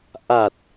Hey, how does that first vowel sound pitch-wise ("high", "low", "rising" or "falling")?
low